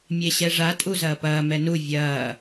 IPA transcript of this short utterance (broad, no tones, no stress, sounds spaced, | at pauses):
mʲ e ɕ ɛ ʐ a tʼ u z ɐː p ɐː m ɛ n u vʲ ɐː